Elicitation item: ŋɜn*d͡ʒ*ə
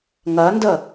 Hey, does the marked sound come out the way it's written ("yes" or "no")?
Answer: no